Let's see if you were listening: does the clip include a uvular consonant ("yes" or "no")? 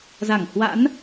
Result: no